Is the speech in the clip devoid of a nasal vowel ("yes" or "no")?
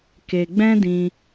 no